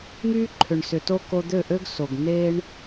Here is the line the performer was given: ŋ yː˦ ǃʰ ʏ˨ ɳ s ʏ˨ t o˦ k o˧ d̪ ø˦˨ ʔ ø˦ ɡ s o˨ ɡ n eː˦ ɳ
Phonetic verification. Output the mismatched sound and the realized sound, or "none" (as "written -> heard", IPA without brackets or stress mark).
none